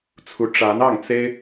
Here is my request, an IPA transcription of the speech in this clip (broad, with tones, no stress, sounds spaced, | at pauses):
t͡sʰ u˧˥ ʈ͡ʂ a˧˥ n ɑ˥˩ ŋ t͡s e˥ ɪ̯